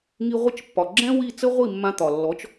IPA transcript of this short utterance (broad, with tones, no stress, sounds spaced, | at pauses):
ŋ i˧ ʁʷ ə˥˩ t͡ʃ pː ɒ˩ ɡ͡ǁ ɛ̃˥ w i˥˩ t͡s ə˥ ʁʷ i˥˩ mː ã˧ t̪ ɒ˩ lː ɔ˩˥ t͡ʃ